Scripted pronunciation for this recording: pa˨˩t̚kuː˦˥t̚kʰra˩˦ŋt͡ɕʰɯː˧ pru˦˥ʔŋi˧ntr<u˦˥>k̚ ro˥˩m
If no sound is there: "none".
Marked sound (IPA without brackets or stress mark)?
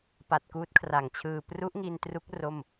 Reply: u˦˥